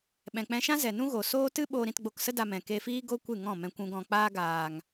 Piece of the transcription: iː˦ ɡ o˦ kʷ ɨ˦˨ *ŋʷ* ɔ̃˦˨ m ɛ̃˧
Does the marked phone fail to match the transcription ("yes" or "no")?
yes